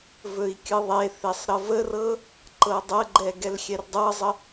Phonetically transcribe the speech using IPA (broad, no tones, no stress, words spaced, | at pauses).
vɵi̯kʲɯðˤeθesˤ ɾəvərɤ | ǃɤdˤəɡ͡ǃɛ ɡɛlxʲɛrdˤɤzˤə